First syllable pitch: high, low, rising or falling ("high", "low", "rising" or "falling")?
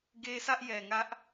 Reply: high